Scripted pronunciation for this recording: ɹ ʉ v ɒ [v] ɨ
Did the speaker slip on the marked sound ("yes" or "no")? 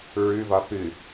yes